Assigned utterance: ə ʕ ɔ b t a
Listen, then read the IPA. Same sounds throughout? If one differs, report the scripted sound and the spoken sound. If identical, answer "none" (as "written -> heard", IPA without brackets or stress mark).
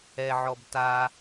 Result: ə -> ɛ